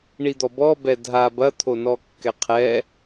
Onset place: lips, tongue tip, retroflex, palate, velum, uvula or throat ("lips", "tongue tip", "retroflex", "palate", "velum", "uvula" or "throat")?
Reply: retroflex